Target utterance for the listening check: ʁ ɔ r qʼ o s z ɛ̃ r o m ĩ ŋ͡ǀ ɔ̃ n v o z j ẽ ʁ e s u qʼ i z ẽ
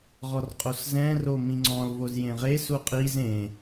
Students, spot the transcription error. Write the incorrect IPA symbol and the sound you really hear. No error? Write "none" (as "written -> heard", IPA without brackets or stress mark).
n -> l